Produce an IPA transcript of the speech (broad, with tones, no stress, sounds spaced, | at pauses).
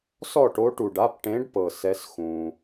s ɔ˥˨ ʈ o˧˥ ʈ u˨ ɖ a˧˥˧ p ʈ ẽ˧˥ ɖ p ɤ˨ s ɛ˧˥ s x ũ˨